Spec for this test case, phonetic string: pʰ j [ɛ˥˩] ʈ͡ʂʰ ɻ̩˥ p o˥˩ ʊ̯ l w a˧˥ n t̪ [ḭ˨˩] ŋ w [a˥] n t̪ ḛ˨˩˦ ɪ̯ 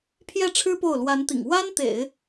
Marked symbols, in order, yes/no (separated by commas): yes, yes, yes